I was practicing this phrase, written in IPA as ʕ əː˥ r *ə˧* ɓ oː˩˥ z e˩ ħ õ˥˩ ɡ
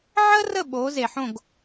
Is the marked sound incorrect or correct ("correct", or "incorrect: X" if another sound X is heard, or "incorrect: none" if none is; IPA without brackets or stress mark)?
incorrect: ə˥˩